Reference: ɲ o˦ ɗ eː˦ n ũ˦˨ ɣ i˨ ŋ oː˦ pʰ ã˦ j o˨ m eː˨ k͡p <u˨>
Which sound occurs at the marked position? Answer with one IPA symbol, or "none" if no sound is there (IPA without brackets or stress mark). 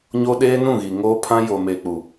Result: u˨